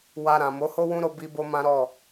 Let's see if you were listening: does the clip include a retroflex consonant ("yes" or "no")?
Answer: no